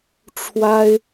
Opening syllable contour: high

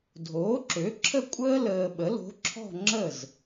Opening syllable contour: rising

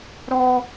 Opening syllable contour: high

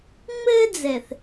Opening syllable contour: high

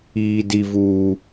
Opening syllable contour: high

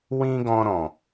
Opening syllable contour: high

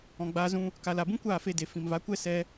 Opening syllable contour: low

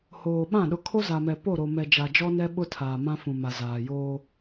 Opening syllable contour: low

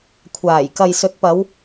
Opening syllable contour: low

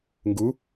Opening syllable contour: rising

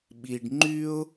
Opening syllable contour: low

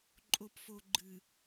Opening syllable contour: low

